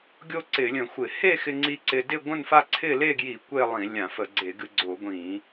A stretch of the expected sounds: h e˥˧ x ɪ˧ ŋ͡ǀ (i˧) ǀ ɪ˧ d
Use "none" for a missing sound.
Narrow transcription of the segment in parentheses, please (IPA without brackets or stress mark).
i˧